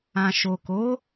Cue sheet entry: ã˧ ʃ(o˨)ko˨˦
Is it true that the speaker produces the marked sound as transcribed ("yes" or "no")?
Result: yes